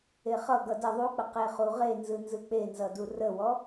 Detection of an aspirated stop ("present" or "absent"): absent